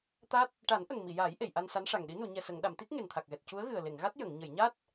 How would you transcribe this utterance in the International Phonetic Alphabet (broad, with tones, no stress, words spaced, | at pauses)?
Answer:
t̪a˦˥t̚ | ʈa˨˩˦nʔə˨˩ŋ mi˨˩˨jaː˨˩˦j ʔe˨˩˨jʔa˧n sa˧˥nʂa˨˩ŋɗi˧˥ nu˨˩˨ɲɛ˨˩sə˨˩˨ŋ ɗa˨˩˨mt̪i˦˥k̚ ŋe˨˩nt̪ʰa˨˩k̚ɣɛ˨˩t̚ cu˧˥ə̯ɣɨ˨˩ə̯ le˨˩˨ŋɣa˦˥t̚ jə˨˩˨ŋ ɲə˨˩˨j ɲa˦˥t̚